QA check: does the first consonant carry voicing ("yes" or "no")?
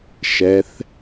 no